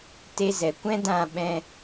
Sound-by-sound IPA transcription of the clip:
te˧zɛ˨kʷɛ̃˦dã˦˨ ɓɛ̃˧

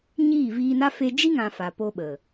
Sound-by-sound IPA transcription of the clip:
ɲiː˦˨viː˧na˦ fe˧d͡ʒi˦ŋã˨ fa˨po˧ɓə˨

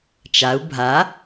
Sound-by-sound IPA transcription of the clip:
t͡ʃau̯ bʱa

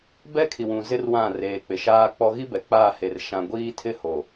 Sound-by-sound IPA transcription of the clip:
bɛ˦kʰi˨wũ˨ zɪ˦rwã˦˨reː˨k͡pɪ˨ ʃaː˦k͡pɔ˦ ɣi˦ bɛ˨k͡paː˦˨he˨r ʃã˨ɡʷiː˦tʰɪ˦ ho˨

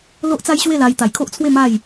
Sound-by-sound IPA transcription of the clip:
lo˦ʔt͡sa˦jɕwe˥˧la˧j t̪a˨˩jkʰo˦ʔt͡sʰwe˥˧ ma˥˧j

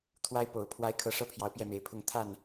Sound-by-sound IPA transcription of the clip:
t̪ʰwa˥ɪ̯po˨˩ʊ̯ pʰwa˧˥ɪ̯ kʰɤ˧˥ʂɤ˥˩pʰjɑ˧˥ʊ̯ pjɛ˥˩me˧˥ɪ̯pʰʊ˥ŋ t̪ʰa˥˩n

